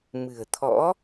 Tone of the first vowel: low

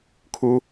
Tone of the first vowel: high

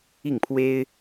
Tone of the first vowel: falling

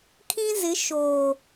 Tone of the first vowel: high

